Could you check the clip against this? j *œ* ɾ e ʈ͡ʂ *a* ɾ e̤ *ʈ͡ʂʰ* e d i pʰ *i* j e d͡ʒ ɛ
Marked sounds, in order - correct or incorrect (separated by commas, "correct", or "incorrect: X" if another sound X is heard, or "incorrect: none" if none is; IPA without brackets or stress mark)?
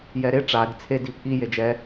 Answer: incorrect: ɛ, correct, incorrect: t͡sʰ, correct